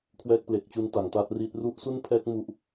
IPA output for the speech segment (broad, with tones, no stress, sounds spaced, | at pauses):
kʰ w ɛː˦˥ k̚ p l e˨˩ k̚ t͡ɕ u˧ n t a˩˦ ŋ t aː˦˥ t̚ r iː˦˥ t̚ r u˦˥ ʔ s u˥˩ n pʰ ɛː˦˥ k̚ m u˦˥ ʔ